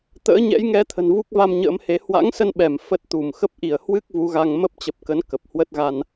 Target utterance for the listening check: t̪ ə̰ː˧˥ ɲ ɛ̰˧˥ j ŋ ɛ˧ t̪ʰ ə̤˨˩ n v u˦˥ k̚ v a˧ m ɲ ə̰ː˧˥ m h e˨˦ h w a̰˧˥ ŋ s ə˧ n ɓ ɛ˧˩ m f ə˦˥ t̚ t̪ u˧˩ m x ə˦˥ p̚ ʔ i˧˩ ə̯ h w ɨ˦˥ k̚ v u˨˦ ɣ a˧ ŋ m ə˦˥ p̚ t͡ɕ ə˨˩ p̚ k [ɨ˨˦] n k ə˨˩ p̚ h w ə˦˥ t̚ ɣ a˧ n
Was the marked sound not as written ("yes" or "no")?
yes